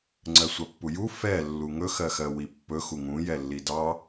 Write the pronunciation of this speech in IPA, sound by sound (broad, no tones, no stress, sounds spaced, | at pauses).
ŋ͡ǀ ɜ sʷ ɑ pː u j u f ɛ lː u ŋ ɵ x ɜ x ɜ w i pː ɵ x u ŋ ũ j ɛ lː i d ɑ